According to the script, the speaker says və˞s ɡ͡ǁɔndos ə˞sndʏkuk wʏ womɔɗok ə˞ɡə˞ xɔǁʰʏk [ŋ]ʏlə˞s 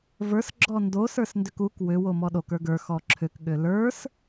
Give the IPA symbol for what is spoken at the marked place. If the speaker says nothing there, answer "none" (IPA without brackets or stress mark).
ɠ